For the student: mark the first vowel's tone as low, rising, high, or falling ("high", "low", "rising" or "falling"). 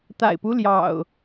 low